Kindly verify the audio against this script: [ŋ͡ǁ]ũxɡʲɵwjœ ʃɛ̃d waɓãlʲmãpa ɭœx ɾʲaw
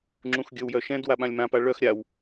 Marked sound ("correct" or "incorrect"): correct